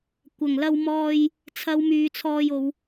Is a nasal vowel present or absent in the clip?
absent